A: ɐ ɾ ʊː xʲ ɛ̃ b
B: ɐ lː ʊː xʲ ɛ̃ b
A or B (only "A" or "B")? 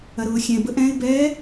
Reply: A